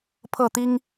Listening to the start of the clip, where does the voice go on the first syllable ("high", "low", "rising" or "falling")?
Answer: falling